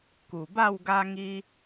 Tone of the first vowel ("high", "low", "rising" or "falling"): low